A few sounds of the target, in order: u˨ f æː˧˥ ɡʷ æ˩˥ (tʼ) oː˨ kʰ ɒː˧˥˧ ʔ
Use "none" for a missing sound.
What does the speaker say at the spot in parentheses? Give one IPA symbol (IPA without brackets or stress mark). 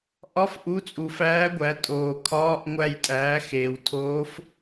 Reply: tʼ